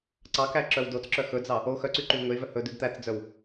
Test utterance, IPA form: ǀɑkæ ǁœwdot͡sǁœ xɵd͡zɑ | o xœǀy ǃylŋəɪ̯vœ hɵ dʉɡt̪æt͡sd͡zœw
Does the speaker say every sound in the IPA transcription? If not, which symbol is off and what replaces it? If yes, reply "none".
ə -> ɵ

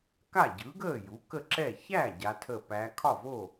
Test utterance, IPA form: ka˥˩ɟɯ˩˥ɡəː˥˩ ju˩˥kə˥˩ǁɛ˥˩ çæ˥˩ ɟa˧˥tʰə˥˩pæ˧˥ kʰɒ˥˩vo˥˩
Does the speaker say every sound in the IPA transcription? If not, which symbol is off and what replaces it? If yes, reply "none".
none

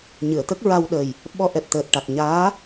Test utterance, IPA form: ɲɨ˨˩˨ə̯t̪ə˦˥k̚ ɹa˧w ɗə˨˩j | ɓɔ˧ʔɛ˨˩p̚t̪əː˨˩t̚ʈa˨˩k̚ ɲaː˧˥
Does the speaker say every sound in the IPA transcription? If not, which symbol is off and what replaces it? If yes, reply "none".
none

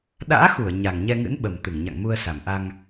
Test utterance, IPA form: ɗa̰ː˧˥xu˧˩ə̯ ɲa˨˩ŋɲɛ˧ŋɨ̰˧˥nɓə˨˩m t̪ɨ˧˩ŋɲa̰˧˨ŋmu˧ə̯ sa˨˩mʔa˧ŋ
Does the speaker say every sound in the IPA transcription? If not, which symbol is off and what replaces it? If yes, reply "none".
none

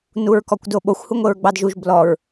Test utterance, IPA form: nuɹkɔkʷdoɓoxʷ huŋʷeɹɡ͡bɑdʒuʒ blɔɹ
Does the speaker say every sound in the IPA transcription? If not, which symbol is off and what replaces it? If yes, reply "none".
none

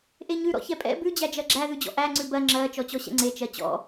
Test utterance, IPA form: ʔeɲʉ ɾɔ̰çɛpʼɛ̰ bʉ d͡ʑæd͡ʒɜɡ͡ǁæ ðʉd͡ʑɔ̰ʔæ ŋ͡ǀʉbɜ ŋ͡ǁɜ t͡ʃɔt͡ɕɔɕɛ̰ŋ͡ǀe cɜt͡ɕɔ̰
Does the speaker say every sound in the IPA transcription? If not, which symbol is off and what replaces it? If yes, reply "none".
c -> t͡ʃ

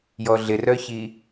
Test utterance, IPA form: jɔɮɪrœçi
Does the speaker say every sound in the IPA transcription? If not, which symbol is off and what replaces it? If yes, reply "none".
none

